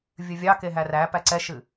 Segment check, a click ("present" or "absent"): present